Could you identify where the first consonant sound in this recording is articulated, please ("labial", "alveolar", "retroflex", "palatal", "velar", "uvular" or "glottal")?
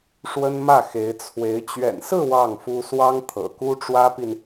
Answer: retroflex